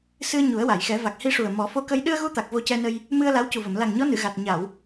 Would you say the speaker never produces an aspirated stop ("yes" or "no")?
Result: yes